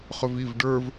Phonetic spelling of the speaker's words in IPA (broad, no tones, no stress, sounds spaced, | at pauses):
χ ɵ v i v ɖ ə˞ v